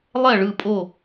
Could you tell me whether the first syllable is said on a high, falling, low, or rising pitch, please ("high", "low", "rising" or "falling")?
falling